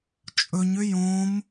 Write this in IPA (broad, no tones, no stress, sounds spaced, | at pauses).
t͡ʃʼ ɵ ɲ ʏ j õ m